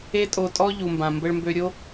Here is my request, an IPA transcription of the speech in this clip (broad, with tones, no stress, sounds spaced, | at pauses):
e˦ tʼ o˧ tʼ ɔ˦ ʎ u˨ m b ã˨ m b ə˧ ɭ m b ø˧ ɾʲ o˦